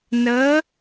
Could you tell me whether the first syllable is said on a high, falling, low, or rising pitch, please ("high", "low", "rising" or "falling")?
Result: rising